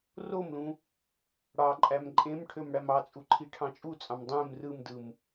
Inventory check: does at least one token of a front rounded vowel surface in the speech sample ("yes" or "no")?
yes